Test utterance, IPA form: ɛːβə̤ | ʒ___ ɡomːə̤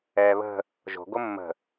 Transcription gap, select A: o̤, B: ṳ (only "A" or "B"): A